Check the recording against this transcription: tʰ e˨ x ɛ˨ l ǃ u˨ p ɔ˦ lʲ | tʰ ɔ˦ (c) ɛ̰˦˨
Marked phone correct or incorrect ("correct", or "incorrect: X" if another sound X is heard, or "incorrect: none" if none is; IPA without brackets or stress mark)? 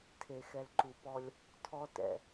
incorrect: t